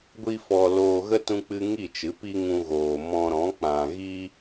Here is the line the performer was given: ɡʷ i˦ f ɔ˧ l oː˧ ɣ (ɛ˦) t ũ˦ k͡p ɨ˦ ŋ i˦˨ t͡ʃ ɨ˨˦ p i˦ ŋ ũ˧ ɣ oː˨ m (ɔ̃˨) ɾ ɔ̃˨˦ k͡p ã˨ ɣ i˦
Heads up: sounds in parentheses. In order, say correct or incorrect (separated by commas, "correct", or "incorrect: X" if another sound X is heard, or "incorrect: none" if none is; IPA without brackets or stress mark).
incorrect: ə˦, incorrect: ɔ̃˧